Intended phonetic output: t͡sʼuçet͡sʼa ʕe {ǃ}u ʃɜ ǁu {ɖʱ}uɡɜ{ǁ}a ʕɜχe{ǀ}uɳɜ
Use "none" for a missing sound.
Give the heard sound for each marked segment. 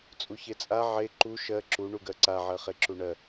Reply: ǃ, ɳ, ǀ, ǁ

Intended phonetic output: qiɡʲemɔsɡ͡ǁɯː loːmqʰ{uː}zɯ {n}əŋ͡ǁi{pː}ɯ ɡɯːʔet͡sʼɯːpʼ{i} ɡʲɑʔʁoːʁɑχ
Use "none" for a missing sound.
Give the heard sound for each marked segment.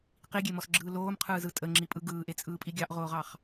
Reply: ɯː, tʼ, pʼ, i

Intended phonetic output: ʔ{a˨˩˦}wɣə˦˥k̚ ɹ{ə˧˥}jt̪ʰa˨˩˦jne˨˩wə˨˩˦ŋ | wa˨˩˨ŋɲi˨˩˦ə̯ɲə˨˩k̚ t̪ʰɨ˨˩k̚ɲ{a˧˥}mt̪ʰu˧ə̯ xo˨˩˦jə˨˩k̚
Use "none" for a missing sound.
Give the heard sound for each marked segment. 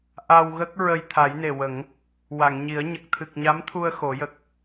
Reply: a˧, ə˧, a˧˥

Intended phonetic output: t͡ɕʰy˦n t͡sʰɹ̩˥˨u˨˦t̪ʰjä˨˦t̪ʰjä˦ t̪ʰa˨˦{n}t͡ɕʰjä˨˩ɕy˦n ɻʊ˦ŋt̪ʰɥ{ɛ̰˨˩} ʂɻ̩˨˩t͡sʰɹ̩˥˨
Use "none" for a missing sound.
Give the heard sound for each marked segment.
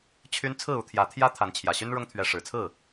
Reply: n, ɛ˨˦

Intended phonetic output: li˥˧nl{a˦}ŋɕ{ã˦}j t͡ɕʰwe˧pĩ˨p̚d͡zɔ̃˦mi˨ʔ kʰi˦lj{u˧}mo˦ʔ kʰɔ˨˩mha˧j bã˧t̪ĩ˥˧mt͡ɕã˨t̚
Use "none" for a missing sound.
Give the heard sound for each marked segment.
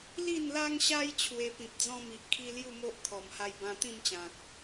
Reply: a˦, a˦, u˥˧

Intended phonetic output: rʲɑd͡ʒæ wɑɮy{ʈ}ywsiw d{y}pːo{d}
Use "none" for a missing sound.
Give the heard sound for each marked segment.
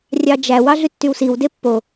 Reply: tː, e, none

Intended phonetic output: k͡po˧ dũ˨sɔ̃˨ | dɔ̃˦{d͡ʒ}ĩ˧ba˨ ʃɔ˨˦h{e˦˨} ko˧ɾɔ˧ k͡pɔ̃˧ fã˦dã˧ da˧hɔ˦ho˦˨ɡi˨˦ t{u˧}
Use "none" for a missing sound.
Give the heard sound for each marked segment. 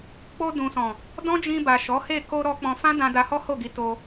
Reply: d͡ʒ, e˦˨, o˧

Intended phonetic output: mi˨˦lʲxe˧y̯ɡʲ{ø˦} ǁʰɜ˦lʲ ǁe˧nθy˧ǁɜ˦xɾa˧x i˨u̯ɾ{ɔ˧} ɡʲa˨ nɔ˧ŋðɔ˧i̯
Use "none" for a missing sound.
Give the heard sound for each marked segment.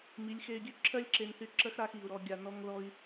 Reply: ø˦, ɔ˧

